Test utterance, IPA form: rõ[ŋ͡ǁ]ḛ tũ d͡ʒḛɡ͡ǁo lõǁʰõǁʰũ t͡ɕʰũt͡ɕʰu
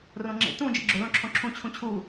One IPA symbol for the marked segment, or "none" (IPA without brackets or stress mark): ŋ͡ǁ